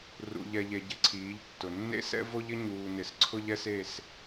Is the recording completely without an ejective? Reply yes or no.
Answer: yes